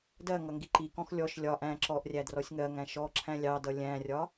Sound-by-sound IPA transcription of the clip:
dɜ ŋʌŋɡiǃikɔ̃x lʲɔʃ lʲɒ ʔæ̃ ǁɔʔrʲæ drɔsʲŋɜŋæ̃ ʃɔ ǁʰæ̃lʲɑdʌ lʲæ̃rʲɒ

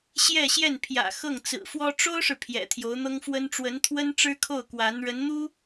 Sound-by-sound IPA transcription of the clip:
ɕjɛ˥˧ɕjɛ˥˩npʰjä̰˨˩ xɤ˥˩ŋt͡sɹ̩˨˩fwɔ˥ ʈ͡ʂo˥ʊ̯ʂɻ̩˨ pʰjɛ̰˨˩ t̪ʰjo˧˥ʊ̯n̪ɤ˥ŋfwə˥n ʈ͡ʂwə˧˥nt̪ʰwə˥nʈ͡ʂɻ̩˥kʰo˥˩ʊ̯ kwa˧˥n ɻə˧˥nn̪u˥

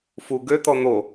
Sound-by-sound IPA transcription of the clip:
fu ɡøt̪ɔ n̪o

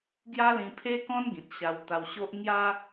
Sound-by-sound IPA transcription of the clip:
ɡja˦lĩ˧pʰe˦kɔ̃˦n ɡĩ˨t̚ɕa˧wt̪a˧wɕo˦ʔ ŋja˦

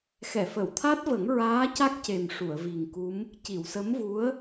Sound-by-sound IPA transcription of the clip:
xɛ˨˩˨fə˨˩˨wt̪ʰa˦˥t̚və˨˩˦ŋ ɹaː˧˥ca˦˥k̚ce˨˩m ʂu˨˩˨ə̯vi˨˩ŋku˧˥m | ci˨˩˨w sə˧˥mvu˧˥ə̯

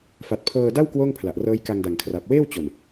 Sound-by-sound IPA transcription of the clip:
fa˨˩t̚pʰɤː˧ da˥˩w kwoː˥˩ŋpʰla˨˩ʔrɤː˦˥j ka˧ŋda˨˩ŋkʰra˨˩p̚ weː˥˩wt͡ɕo˨˩n

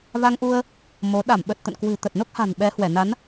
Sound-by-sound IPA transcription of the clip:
va˧ŋʔu˧ə̯ | mo˨˦ ɗa˧˩mɓə˨˩t̚ t̪ə̰˧˨nkwɨ̤˨˩ t̪ə˨˩t̚no˦˥k̚ha̤˨˩n ɓɛ˨˦hwɛ˧˩na˨˦n

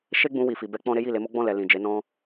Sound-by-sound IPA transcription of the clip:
ʃe˦ɡ͡bũ˧ wi˨fi˨ bɛ˧k͡pɔ̃˧ ɾe˦ji˦˨le˧ mo˦ɡ͡bɔ̃˦˨lɛ˨ lĩ˨ d͡ʒe˨˦ nɔ̃˧

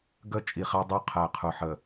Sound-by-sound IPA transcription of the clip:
ɡə˦˨t͡ʃʼi˨ χæ˦dˤu˦qʰæ˨ qʰʊ˨ħə˨

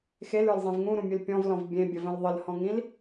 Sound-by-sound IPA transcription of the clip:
xelə˞lzˤẽv ŋũɾũmʲʉl pʲɔ̃vlɔ̃v bʲẽbʲəvə̃l ðˤəlhɔ̃ŋĩl

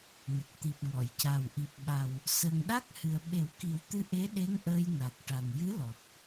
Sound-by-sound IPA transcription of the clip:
nə˨˩k̚t̪i˨˩p̚ŋɔ˨˩˨jca˨˩w ʔi˨˩p̚ɓa˨˩w | səː˨˩ŋɗa˦˥k̚ hɨ˨˩ə̯ɓe˨˩˦wki˨˩˦wt̪ɨ˧˥ ʔe˧˥ɗe˧˥ŋ ʔəː˧jna˨˩k̚ ʈa˨˩njɨ˧˥lɔ˨˩t̚

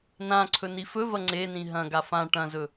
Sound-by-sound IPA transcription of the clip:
nã ǀʰɵnifɵvɐ ŋ͡ǀenĩ ɦɐ̃ɡa fã ʈɐ̃zɵ

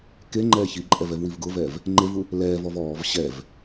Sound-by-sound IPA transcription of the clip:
keŋ͡ǃɛː çiǃʼɛv ɛvwivɡʊvɛːv | ŋ͡ǃevu | lɛːvɔv ɔːv ɕɛv

